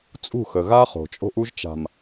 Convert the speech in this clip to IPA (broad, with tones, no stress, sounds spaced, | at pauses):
t͡sʼ ṳ˦˨ x ə˨ ɣ a˦ χ o̤˨ t͡ʃʼ o̤˦ ʔ u˦ ʒ t͡ʃ a̤˨ m